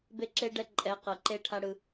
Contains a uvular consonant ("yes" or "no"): yes